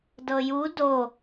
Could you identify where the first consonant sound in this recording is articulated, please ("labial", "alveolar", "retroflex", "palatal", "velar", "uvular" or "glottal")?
alveolar